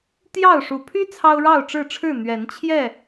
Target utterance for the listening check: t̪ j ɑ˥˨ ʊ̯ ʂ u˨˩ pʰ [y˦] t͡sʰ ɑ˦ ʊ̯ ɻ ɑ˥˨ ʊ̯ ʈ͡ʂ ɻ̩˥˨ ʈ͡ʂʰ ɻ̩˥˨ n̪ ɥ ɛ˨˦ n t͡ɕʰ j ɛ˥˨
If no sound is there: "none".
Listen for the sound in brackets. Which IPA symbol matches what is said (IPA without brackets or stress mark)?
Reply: y˦